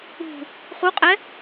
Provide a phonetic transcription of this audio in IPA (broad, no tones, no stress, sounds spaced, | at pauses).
ṳ | χ u qʼ ɛ